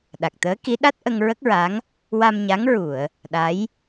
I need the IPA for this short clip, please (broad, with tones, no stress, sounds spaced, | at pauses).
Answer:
ɗ a˨˩ k̚ t̪ əː˧˥ k i˧˥ ɗ a˦˥ t̚ ʔ ə˧ ŋ ɹ ə˦˥ k̚ ɹ a˧˥ ŋ | w a˧ m ɲ a˧˥ ŋ ɹ u˨˩˨ ə̯ | ɗ a˧˥ j